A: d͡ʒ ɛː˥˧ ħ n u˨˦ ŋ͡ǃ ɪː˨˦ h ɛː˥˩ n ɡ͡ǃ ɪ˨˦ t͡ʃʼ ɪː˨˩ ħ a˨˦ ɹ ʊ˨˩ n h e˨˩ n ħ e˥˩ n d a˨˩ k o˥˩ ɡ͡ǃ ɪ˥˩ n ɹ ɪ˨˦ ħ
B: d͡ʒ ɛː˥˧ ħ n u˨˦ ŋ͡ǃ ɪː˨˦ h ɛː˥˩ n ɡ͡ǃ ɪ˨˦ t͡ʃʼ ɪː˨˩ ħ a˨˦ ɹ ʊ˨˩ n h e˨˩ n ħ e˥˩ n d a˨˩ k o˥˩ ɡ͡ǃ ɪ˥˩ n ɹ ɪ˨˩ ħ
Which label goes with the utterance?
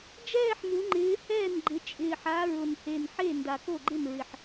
B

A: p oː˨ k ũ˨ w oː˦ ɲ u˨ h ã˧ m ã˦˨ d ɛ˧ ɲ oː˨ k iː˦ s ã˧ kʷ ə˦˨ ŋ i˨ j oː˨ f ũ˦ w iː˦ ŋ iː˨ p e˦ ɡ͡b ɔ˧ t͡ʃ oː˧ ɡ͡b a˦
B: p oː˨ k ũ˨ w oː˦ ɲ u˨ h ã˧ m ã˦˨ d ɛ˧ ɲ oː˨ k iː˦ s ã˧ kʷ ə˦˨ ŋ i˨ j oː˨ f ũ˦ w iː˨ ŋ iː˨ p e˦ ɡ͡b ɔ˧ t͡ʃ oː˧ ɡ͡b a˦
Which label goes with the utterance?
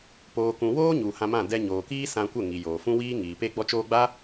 A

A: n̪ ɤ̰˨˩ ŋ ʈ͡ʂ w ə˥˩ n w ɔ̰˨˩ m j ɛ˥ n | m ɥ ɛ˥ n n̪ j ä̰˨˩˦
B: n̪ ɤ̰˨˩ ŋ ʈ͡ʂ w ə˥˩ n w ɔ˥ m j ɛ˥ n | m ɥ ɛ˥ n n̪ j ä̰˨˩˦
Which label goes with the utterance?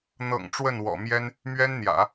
A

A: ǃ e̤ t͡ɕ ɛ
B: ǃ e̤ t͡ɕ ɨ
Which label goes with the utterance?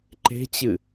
B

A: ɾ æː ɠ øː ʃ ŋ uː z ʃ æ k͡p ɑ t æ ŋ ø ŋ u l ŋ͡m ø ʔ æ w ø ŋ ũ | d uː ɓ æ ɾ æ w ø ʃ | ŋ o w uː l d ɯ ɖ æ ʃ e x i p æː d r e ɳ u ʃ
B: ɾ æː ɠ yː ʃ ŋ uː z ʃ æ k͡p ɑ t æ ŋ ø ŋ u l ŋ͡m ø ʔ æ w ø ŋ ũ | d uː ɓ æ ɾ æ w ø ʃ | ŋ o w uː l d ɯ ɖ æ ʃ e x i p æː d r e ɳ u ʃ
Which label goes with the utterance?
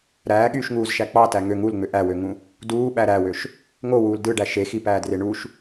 B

